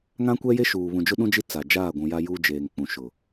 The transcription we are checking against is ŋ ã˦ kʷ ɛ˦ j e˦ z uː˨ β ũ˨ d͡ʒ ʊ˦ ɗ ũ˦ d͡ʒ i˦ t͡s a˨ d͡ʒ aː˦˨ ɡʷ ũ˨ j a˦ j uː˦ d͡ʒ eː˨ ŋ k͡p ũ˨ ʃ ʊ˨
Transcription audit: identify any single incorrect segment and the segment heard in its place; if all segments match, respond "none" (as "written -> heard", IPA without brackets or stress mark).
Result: z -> ʃ